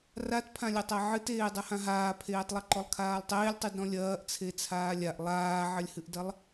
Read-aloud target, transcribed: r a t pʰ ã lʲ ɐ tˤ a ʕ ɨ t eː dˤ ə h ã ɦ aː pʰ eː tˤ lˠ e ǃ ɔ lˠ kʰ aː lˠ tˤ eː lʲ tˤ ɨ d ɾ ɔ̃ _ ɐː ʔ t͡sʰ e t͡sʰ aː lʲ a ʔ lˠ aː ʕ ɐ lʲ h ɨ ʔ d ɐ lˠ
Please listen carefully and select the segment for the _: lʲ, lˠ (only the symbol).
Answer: lʲ